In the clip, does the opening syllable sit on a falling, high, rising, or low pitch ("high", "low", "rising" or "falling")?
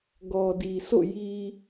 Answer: low